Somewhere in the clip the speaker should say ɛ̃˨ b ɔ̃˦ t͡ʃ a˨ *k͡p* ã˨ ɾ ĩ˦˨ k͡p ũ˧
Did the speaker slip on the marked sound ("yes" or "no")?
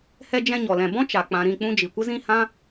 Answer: no